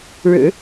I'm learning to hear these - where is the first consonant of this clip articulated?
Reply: retroflex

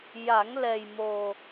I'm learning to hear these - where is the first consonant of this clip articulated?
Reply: palate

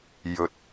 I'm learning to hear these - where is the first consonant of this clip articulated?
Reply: palate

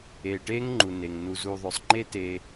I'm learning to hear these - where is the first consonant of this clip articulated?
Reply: retroflex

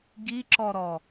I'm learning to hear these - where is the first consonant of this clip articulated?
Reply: velum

